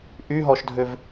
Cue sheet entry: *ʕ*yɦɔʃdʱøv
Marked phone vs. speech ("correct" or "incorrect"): incorrect